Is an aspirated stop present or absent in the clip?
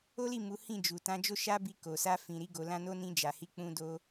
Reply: absent